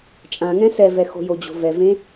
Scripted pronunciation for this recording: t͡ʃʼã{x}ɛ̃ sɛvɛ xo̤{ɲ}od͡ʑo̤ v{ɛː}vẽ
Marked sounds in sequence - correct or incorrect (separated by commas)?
incorrect, incorrect, incorrect